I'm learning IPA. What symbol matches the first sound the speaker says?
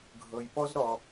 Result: ɡʱ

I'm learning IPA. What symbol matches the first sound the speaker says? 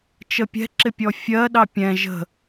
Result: t͡ʃ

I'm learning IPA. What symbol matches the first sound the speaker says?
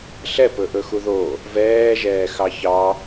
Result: ɬ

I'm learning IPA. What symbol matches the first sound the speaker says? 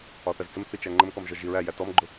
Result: ɒ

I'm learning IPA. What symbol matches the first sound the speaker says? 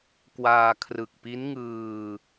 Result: k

